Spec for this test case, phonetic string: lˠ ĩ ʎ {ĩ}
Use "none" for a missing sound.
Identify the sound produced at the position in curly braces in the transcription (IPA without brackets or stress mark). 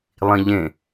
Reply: ẽ